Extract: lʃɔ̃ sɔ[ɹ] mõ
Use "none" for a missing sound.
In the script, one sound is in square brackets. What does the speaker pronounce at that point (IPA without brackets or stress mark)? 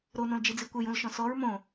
ɹ